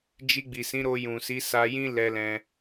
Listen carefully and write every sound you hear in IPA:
d͡ʒi˧ɡ͡bi˨sĩ˨˦ ɾo˧jũ˨si˨˦ sa˧jĩ˦ lɛ˧lɛ̃˧

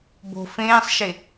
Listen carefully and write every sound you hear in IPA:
bo̤ fẽːsˤʃe

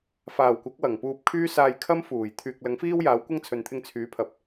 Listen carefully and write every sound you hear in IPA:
faː˨˩wkʷɐ˨˥k̚ wɐ˨˩ŋpuː˧p̚kʰyː˥ saː˧jkʰɐ˥m fuː˨˩j t̪ʰyː˨k̚lɐ˨˥ŋfiː˥wjaː˨˥w kʷɐ˥ŋt͡sʰɵ˨nt̪ʰɪ˧ŋ t͡sʰyː˨˥pʰɐ˨p̚

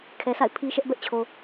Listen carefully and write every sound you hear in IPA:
kʰɛ˨sa̰˦˨ɪ̯ pʰi˦ʃɛ˦ʔ bɛ˦ʔt͡ɕʰo˨

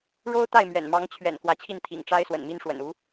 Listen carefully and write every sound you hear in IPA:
ɻo˥ʊ̯ t̪a˥˩ɪ̯mɥɛ̰˨˩n mɑ˧˥ŋt͡ɕʰɥɛ̰˨˩n kwä˧˥t͡ɕʰi˥˩n t̪ʰḭ˨˩ŋʈ͡ʂa˥ɪ̯ swə̰˨˩nmi˥nʂwə̰˨˩n u˧˥

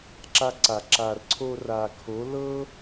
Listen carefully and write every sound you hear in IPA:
ǁa˧ǀa˨ ǁa˨rǀʰo˧ra˨kʰo˨˦ lɤ˦

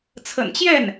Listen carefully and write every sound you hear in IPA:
t͡sʰə̰˨˩nt͡ɕjɛ˥˩n

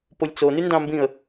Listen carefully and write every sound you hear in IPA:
polʲt͡so nyndɑ̃mbĩə̯

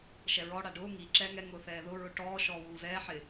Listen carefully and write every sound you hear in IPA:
ʃɛɹɔ ɽaɖʊː ŋi ǁɛːŋɛ ŋʊːθɛːðʊ ɹʊʈɔː ʃɔːwuːzɛː ħɪ

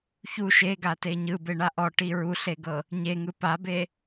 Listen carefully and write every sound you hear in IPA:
çu ʃeɡate ɲɯbeɳa ʔɔʈi ɹuɬeɡɤ | ɲeŋɯ pabe

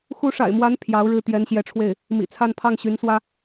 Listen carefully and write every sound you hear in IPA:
xu˧˥ʂa̰˨˩ɪ̯mwa˧˥n pʰjɑ˧˥ʊ̯ɻɻ̩˥˩ t̪jɛ˧˥nɕjɛ˧˥ʈ͡ʂʰwe˥˩ɪ̯ | mḭ˨˩t͡sʰa˥˧n pʰɑ˥˩ŋɕy˧˥nswä˥

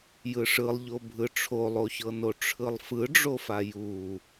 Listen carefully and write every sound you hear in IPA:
jɯʂɯlˠʎobʱɯ ʈ͡ʂʰolˠoçɤno ʈ͡ʂʰɯlˠfɯɖ͡ʐofa ju

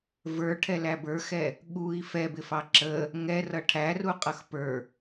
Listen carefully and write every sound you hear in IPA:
və˞ʈʰɛlæ bə˞xɛ | ɠui̯ fɛbɪfɑ ǁə | ŋɛrʌ ʈʰæruqʼʌx pə˞

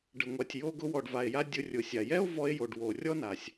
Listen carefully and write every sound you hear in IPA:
ɖə˩ŋʷa˩tʲ jo˧ɡʊ˧wɔ˩ɖ va˩e̯ja˧ dʲʊ˧rʲʊ˩sʲa˩ jɛ˥o̯vɔ˧e̯jo˩ɖ wo˩rʲɔ˥na˩sʲ

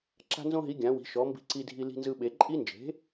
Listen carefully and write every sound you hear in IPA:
ǁa̤˦nzõ˦ɦi˩˥ ɡʲã˩˥wi̤˩˥ʃɔ˩˥ mbi̤˦ǀi˦dʱi˦ li̤˦nzɯ˦ɓe˩˥ ǃʼi˦nd͡ʒe̤˩˥

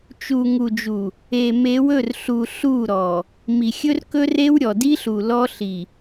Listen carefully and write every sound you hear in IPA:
t͡ʃu˨ŋu˨ d͡ʒu˨ | e˨me˨˦wɵ˦˨rɬu˨ ɬu˦˨ɾɔ˨ | mi˨xʲɵ˦rkɵ˦re˦w ɾʲɔ˨di˦ɬu˨ lɔ˦ɬi˨

